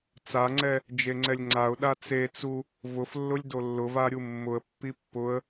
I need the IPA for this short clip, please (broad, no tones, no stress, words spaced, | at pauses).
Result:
t͡saŋ͡ǀɛ | d͡ʒeŋ͡ǀɛlʲŋ͡ǀaʊ̯ɗa t͡set͡su | vʊflːʊlʲ dolːʊva ɾʲumːʊə̯pːi pːʊə̯